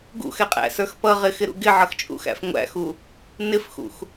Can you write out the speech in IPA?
ɡ ṵ x ɛ qʼ æ̰ s ə˞ x p ʌ ʁ ɪ x ɪ ɾ ṵ ɡ ɪ ʕ ʌ x t͡ʃʼ ṵ x æ̰ f ŋʷ æ̰ x u | n ɪ f x ṵ x

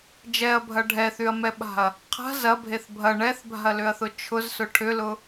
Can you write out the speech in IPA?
d͡ʒ ɛ ɐ̯ bʱ ɐ ɖʱ ɛ θ y ɐ̯ m ɛ ɓ a̤ ɐ̯ | qʰ a̤ z ɐ bʱ e θ bʱ ɐ ɳ ɛ θ bʱ a̤ ɐ̯ l ʏ ɐ̯ θ ʊ t͡ʃʰ ʊ z s ʊ ʈʰ ʏ l ʊ

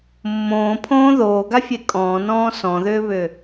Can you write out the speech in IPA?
mː õː pʰ õː ð oː ɡ a fʲ e kʼ ɔ̃ː n ɔ̃ː s ɔ̃ ð ʏː β ʏ

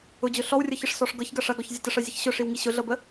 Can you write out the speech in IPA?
ʊ d͡ʑ ʊ ɬ ɔ w rʲ ɤ ç ə ʂ s ɔ ʂ ɡ ɤ ç ɡ ɐ ʂ ɐ ɡ ɔ ç zʲ ɐ t ə ʂ ɤ zʲ ə ç ɕ ʊ ʂ i w ŋ i ɕ ʊ ɮ ɤ b ə

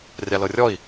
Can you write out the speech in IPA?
rʲ a l ɤ rʲ ɔ i̯

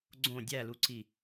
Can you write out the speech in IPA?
ɡ͡ǀ õ dʲ æ l u ǀ i

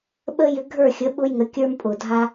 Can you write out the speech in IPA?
ɓ ə˦ j ʏ˧ ɡʱ ə˞˦˨ xʲ ə˨˦ ɓ ʊ˦ j ŋ ə˨˦ kʲ ə˞˦ m pʼ ʊ˨ dʱ a˦

